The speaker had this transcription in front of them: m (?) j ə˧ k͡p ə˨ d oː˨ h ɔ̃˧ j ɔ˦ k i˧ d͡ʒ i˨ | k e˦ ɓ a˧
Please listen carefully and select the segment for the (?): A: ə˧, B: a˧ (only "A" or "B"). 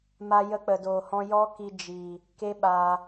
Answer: B